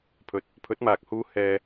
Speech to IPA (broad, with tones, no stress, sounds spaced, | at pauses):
pʰ ɵ˨ t̚ | pʰ ɵ˨˥ t̚ m aː˨ k̚ h uː˧ h ɛː˧